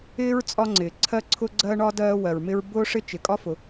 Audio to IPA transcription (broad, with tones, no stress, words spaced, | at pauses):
ɪː˥ɹ t͡sʼɒ˥ŋ͡ǀɪː˩ ǀʰɜ˥ǀʰʊ˥ɡ͡ǀɜ˥ɳɒ˥ dɜː˥wɜ˩ɹmɪ˥ɹ bʊː˥ʂɪ˥ t͡ʃɪ˩kʼɒ˥fʊ˩